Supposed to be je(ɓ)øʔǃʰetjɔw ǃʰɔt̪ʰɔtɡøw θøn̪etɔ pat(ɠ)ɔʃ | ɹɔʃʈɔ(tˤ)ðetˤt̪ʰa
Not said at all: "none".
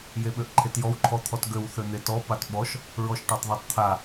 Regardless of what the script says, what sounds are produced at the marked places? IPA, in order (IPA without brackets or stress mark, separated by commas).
ɓ, ɓ, tˤ